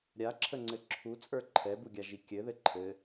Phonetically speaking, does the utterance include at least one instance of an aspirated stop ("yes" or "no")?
yes